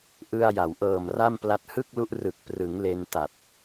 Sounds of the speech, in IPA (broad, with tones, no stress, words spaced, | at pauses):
ʔɯ˧a̯ja˩˦w ʔɤː˨˩mra˥˩mpla˦˥t̚ hɯ˥˩k̚lu˦˥ʔrɯ˨˩k̚ prɯ˩˦ŋ le˧nta˨˩t̚